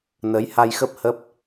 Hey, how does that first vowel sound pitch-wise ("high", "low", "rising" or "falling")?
rising